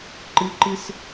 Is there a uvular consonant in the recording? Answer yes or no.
no